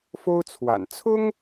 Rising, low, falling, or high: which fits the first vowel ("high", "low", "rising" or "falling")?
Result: high